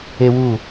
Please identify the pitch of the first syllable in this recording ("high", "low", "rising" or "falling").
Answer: high